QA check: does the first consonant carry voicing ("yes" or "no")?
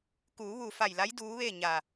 no